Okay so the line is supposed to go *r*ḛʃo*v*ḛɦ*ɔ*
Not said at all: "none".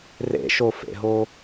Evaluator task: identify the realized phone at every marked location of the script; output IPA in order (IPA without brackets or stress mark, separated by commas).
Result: r, f, o